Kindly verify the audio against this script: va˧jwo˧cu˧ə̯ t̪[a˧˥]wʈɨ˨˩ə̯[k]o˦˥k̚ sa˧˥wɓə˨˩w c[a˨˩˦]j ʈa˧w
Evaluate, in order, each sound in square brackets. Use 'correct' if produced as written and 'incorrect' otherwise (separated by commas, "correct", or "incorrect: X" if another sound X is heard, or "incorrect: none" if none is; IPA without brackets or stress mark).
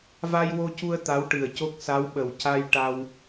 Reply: correct, incorrect: c, incorrect: a˧